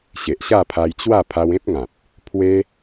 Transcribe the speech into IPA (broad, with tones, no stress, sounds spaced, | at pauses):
ɕ e˨ ʔ ɕ a˥˧ pʰ a˧ j t͡ɕ w a˥˧ pʰ a˧ w ẽ˦ p̚ ŋ ã˨ p̚ | pʰ w e˦